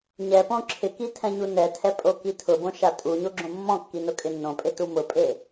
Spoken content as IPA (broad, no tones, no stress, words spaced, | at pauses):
ɲɛpõ ǁʰɪki tʰɛ̃ɲunɛtʰɛ pʼokitʰʊbõ ʃatʼuɲo ɡ͡ǁõmːɔ̃kːi nʊkʼɪnːõpʼe tumʊpʼe